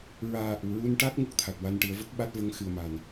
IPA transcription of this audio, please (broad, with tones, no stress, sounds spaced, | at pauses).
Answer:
ɹ aː˨˩ ʔ u˨˩˨ ɹ u˧ n ʈ a˦˥ t̚ ŋ u˦˥ k̚ t̪ʰ a˨˩ t̚ w a˧ n ʈ ɨ˨˩˦ ə̯ v ə˦˥ k̚ ɓ a˦˥ t̚ v ə˧˥ ŋ x ɨ˨˩ ə̯ m a˨˩ n